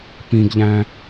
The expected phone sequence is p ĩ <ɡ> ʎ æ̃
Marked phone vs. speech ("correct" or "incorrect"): correct